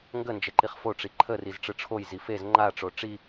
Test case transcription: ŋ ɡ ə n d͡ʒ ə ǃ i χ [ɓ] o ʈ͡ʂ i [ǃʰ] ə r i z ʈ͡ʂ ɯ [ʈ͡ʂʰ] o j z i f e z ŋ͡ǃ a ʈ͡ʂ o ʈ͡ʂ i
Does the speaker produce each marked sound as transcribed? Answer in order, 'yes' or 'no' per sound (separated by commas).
no, yes, yes